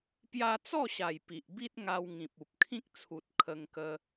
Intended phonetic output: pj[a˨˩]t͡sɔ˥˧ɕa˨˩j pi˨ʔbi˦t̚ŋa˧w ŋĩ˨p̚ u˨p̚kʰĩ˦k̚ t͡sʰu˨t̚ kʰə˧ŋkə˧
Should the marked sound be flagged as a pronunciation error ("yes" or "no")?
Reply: yes